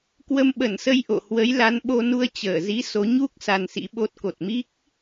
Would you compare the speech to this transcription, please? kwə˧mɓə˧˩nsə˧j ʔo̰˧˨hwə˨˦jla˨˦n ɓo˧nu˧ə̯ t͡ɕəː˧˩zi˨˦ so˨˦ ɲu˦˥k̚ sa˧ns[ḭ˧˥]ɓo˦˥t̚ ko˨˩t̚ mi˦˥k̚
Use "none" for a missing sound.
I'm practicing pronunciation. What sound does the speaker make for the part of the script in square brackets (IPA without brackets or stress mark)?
ḭ˧˥